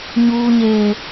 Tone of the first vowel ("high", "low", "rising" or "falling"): low